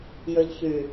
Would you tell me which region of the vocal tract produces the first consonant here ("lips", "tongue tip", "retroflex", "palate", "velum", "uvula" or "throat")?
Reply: palate